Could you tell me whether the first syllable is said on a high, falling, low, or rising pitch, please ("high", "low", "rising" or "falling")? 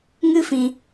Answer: high